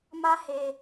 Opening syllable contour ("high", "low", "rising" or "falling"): high